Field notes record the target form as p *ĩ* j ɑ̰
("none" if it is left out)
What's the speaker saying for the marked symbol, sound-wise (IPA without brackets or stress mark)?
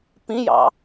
ĩ